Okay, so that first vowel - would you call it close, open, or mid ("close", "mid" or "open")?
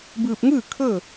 close